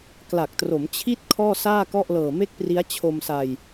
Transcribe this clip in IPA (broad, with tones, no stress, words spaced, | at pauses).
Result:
kla˨˩k̚tro˩˦mt͡ɕʰi˥˩t̚ kʰɔː˥˩saː˥˩kɔ˥˩ʔ lɤː˨˩me˥˩k̚pri˦˥a̯ t͡ɕʰo˧msa˧j